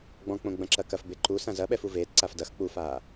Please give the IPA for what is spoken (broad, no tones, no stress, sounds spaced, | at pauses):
ɡ͡b ɔ̃ k͡p õ ɡ͡b ɐ̃ ǁ ɐ k ɐ f b e ǃ u s ã z ɐ ɓ ɛ f u v eː t ǀ a f d ɐ x k͡p u f aː